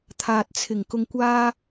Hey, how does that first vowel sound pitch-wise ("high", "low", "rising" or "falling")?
low